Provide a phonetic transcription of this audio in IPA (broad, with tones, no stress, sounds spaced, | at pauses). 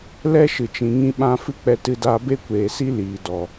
l ɛ˦ ʃ ɨ˨ t͡ʃ ĩ˨ ŋ ĩ˦ ɓ ã˦ f ɨ˦ k͡p ɛ˧ t ɨ˧ d aː˧ b e˦ kʷ eː˨ s i˦ l iː˨ d ɔ˨